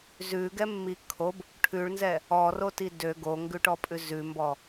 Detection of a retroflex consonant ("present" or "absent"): present